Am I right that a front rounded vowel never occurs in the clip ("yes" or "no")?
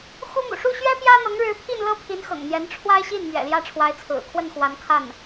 yes